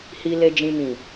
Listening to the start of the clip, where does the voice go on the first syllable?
low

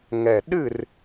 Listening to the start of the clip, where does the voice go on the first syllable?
low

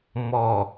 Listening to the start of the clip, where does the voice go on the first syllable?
low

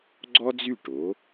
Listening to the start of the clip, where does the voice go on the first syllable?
high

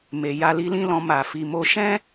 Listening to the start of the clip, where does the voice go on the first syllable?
low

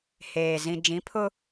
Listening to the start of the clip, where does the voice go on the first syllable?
low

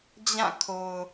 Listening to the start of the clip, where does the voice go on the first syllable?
falling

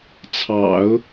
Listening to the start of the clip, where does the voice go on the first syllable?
low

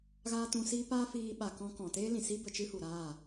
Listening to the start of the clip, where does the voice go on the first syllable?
high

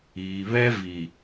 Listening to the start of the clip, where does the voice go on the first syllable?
low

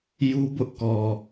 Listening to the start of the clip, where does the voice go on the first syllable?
high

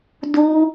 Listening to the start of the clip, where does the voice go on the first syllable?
high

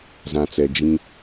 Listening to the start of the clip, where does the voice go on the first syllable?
low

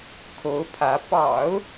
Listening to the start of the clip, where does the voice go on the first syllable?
rising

